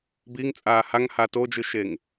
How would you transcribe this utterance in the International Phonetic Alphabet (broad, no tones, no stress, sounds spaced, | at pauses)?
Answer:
b i ŋ t͡sʼ aː h a ŋ h a t o d͡ʒ ɯ ʃ e ŋ